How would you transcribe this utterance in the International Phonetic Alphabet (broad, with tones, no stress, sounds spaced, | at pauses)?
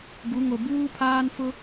ɡ u˨˦ ŋ o˨ b uː˦ pʰ aː˦ n f ʊ˦